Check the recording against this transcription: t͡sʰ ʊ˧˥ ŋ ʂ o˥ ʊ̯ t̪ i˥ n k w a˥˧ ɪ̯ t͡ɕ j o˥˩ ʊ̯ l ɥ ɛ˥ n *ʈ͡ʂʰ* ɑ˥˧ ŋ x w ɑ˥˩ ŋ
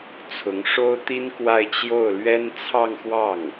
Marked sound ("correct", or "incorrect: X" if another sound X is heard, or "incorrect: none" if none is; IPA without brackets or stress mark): incorrect: t͡sʰ